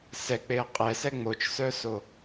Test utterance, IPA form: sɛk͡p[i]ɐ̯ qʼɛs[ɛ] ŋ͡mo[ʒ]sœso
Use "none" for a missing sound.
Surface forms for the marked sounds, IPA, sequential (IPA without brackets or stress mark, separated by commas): e, ɛ, t͡ʃ